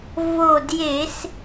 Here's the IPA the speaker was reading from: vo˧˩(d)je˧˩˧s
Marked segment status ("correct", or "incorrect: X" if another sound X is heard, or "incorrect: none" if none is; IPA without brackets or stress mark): correct